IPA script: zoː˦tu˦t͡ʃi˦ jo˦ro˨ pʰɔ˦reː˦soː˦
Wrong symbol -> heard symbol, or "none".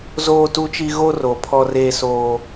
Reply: j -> ɣ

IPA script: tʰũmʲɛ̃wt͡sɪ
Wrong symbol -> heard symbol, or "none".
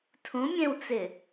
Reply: none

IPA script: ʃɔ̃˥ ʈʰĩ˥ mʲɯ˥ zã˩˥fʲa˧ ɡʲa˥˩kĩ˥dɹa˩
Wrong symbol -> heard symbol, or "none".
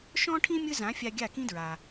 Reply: none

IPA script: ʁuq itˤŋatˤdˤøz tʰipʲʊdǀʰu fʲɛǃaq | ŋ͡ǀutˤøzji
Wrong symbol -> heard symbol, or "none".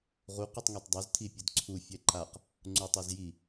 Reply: none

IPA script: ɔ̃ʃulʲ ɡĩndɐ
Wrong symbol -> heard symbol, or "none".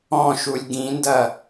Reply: none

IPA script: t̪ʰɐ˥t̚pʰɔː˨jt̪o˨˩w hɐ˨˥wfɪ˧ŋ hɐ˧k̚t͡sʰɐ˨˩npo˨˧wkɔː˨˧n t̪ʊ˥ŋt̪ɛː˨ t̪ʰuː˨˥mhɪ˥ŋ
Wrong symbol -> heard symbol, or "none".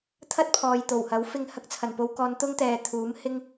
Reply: none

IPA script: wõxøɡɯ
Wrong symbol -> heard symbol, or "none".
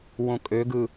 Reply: x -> kʼ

